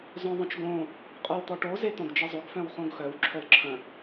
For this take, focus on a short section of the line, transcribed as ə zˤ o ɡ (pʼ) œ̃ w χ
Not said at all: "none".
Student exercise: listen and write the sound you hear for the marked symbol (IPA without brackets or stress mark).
f